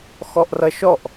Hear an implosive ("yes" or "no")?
no